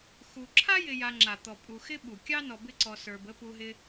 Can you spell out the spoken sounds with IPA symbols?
x u˨ ǁʰ a˥ j ɪ˨ j a˨ ŋ͡ǁ a˩ t̪ ɔ˩ pʼ u˨ x ɪ˥ ɓ u˩ kʲ ɑ˥ n ɔ˨ b ɪ˦ ǀ ɔ˨ s ə˞˨ b ə˥ p u˦ ɦ ɪ˥

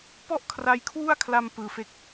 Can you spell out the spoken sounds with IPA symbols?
p ɔ˥˩ ʔ kʰ r a˦˥ j kʰ w u˥˩ a̯ kʰ l a˧ m p ɯː˧ f e˥˩ k̚

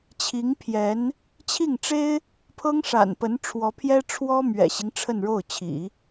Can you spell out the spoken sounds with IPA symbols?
t͡ɕʰ i˧˥ ŋ pʰ j ɛ˧˥ n | t͡ɕʰ i˥˩ ŋ ʈ͡ʂ e˥ ɪ̯ | pʰ ɤ˥ ŋ ʂ a̰˨˩ n p ə˧˥ n ʈ͡ʂʰ w ɔ˧˥ pʰ j ɛ˥ ʈ͡ʂʰ w ɔ˥ m ɥ ɛ̰˨˩ ɕ i˦ ŋ ʈ͡ʂʰ ə˥˧ n ɻ o˥˩ ʊ̯ t͡ɕʰ ḭ˨˩˦

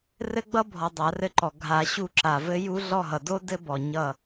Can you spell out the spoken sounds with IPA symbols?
r ɘ˦˥ ɡ͡b ʌ˦˥ bʱ ɔ˨ dˤ a˨˩˦ r ɘ˦˨ ǃ ɔ˨ ɡʱ a˨˩˦ ɕ u˦˨ ǁ a˨ v ɘ˦˥ j u˦˥ ɮ ɔ˦˨ ɦ ʌ˨ d o˦˥ d ɘ˦˥ b ɔ˨ ɲ ʌ˦˨

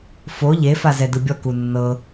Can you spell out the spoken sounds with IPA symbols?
f o ʎ e f a z ɛ d ɯ bʲ ɔ k u nː ɤ

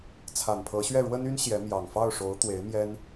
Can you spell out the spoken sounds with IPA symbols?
t͡sʰ a˨˩ n pʰ ɤ˧˥ ɕ ɥ ɛ˥˩ ɻ w ə˥ n y˥ n ɕ j ɛ˧˥ m j ɑ˨˩ ŋ f ɑ˥˩ ʊ̯ ʂ o˧˥ ʊ̯ t̪ w e˧˥ ɪ̯ m j ɛ˥ n

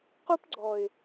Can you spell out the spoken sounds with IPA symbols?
q u˦ p ɡ͡ǀ ɔ˨ ɪ̯

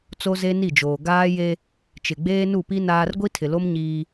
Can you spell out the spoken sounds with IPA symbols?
t͡s o˦ z e˦ n i˦˨ d͡ʒ oː˨ ɡ aː˦ j e˦ | t͡ʃ ɪ˨ ɡ͡b eː˦ n u˦˨ p i˦ n aː˦ r ɡʷ i˦ tʰ ɪ˨ l o˦ m ɲ iː˦

